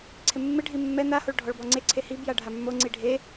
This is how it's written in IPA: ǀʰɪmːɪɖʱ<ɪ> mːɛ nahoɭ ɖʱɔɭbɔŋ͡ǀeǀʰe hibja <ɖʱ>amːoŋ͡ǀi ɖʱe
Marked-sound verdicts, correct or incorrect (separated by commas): incorrect, correct